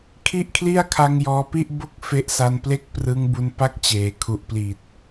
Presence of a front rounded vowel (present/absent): absent